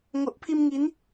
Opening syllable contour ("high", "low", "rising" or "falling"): low